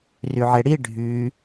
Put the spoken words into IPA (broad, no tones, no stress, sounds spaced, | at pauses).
r y ʕ e ɽ i ɖʱ y